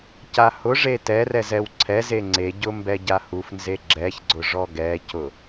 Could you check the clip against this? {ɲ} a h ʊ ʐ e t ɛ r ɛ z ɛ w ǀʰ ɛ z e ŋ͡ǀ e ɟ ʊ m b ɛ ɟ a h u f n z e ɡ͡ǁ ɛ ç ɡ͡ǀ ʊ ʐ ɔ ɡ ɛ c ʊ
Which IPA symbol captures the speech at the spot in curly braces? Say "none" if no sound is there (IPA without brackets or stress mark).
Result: c